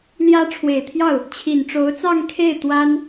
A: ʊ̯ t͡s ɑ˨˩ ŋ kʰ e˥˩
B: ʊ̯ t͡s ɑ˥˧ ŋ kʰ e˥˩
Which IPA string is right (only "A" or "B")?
B